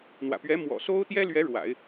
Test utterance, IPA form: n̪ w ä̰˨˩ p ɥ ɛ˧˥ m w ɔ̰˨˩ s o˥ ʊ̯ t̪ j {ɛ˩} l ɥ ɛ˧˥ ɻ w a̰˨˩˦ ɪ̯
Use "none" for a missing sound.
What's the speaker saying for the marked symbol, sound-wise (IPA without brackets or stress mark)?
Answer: ɛ˥